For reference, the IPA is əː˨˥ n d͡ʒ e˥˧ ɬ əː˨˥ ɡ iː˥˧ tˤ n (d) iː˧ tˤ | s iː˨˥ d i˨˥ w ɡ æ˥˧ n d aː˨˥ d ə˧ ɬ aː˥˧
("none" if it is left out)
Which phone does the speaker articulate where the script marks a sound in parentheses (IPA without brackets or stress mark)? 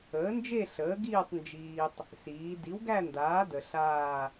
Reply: d͡ʒ